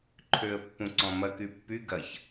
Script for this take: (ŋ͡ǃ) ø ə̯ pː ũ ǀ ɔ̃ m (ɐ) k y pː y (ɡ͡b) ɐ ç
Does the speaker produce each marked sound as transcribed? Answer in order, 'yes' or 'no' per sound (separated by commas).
no, yes, no